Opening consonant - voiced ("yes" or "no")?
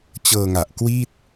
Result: no